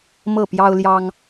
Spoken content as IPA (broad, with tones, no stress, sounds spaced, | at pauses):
m ɤ˥˨ p j ɑ˦ ʊ̯ l j ɑ˦ ŋ